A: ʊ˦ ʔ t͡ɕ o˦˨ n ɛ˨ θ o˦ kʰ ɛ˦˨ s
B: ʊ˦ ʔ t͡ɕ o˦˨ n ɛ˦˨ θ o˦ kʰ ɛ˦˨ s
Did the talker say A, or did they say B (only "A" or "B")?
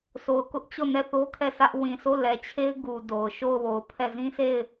B